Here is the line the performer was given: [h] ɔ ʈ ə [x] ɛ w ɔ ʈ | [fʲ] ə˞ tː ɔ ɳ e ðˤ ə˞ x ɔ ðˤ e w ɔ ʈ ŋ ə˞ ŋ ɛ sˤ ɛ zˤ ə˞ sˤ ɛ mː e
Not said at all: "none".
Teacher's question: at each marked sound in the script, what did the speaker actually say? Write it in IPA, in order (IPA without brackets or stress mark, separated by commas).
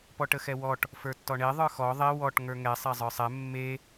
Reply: p, x, f